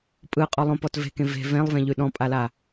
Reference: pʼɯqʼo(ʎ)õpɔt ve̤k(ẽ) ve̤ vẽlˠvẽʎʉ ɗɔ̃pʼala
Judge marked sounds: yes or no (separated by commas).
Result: no, yes